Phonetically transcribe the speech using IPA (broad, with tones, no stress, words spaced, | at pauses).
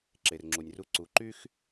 ǁe˨rŋ͡ǁu˨nʲru˦ ǀu˨˦ ǃy˦x